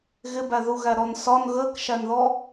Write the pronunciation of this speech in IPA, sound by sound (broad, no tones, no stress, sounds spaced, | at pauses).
ɣ ɪ b æ ð u ɣ æ ɾ ɔ n s ɒ n ɣ əː k ʃ æ n ð ɔ